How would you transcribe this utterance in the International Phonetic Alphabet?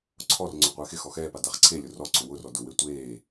ǀʰɔrŋ͡ǀʊ qʷɪːxɪxɔ xɛːpa daχǀʰelʲʊ rɔ ǀʊwʊrɔ dʊwe tʷeː

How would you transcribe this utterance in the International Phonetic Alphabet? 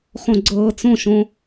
χõɡ͡ǀɤːt͡sõʃõ

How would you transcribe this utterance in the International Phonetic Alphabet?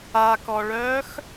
akɔɭœːx

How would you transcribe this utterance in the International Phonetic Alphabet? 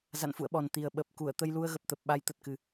za̰˧˨nfṵ˧˨ə̯ɓɔ˨˩n t̪i˨˩ə̯ ɓə˨˩p̚ku˧˩ə̯ t̪ə˧jlu˧ə̯ɣə˨˩p̚t̪ə˨˩p̚ ɓa˨˦jt̪ə˨˩t̚kɨ˨˩

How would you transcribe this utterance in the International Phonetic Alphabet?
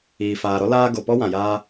iː˨faː˨ɾɔ˦ laː˧ ɡo˨pɔ˦ wã˨jaː˦

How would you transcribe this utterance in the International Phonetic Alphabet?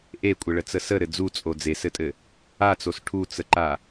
ʔekʷʼɘɭət͡sə səɾɘ d͡zut͡sʼo d͡zesɘtʼɘ | at͡sos ʈʰut͡səǃa

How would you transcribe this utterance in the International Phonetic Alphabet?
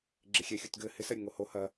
ɡ͡ǁɪxʲɛ xʲutɡɘ hɪsɐ ɾʲəŋoho hɐ

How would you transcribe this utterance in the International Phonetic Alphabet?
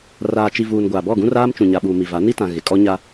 raː˨t͡ʃi˨vuː˨n ɡʷaː˨bɔ˦˨ɡũ˦ raː˦mt͡ʃũ˨ɲa˨ɓuː˨ mi˨va˨˦ ni˦tã˨ ɣɪ˨ kʼɔ˦ɲa˦

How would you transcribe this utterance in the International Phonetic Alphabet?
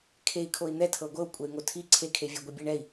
kʰei̯kʰoi̯ n̪ɛ tʰɤɡʷɤu̯ kʷʼɛy̯ŋotʰi ǀʰekʰevʲɛ ɡʷibʲɛɳɛi̯

